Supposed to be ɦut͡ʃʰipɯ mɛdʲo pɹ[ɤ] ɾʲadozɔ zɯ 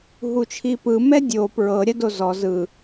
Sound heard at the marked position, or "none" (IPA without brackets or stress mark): ɤ